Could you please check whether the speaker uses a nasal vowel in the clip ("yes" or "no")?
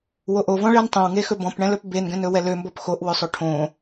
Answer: yes